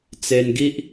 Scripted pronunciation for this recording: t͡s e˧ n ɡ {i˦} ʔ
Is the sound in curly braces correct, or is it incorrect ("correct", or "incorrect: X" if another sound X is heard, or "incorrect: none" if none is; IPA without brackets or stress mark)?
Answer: correct